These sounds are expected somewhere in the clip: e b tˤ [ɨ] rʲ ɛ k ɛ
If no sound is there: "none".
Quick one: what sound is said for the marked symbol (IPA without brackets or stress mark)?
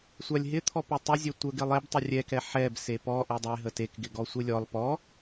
ɪ